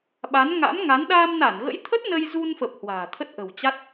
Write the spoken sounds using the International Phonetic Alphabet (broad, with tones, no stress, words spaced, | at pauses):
ɓa˨˦nŋa̰˧˥mŋa˨˦n ɗaː˧mna˧˩nɣə̰˧˥jt̪ʰə˦˥t̚ nə˧jzu˧nfə˨˩p̚ hwa̤ː˨˩t̪ʰə˦˥t̚ʔə̤˨˩wt͡ɕa˦˥t̚